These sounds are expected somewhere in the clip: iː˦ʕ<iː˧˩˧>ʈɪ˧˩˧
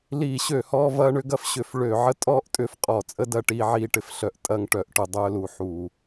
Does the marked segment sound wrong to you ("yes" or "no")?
yes